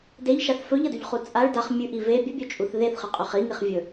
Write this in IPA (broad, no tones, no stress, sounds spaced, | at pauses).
d e ʎ ʃ a θ f ɵ ʎ ɐ d ʉ ʎ χ u t͡sʼ a ɭ d a χ mʲ ʉ ʔ i v e bʲ ɨ bʲ ɵ t͡ʃʼ u θ ð e θ χ ɨ qʼ ʉ χ i ŋ i χ vʲ ɵ